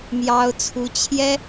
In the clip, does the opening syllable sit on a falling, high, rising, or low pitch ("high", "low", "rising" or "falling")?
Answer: high